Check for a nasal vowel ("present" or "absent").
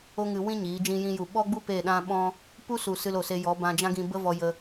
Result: present